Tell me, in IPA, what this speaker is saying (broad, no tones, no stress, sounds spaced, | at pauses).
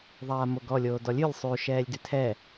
ðˤ aː m o ɡ ɔ lʲ oː d ɔ lʲ ʉ lʲ sˤ ʉ ʃ ɛː lʲ d ʉ tʰ ɛ